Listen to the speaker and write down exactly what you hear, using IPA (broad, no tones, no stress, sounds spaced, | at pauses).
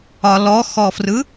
ɒ l ɔ x ɔ f r ɯ